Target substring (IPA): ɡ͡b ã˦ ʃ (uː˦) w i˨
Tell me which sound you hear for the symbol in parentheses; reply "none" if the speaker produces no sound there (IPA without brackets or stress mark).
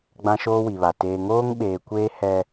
oː˦